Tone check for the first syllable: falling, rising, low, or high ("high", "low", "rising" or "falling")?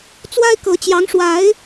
high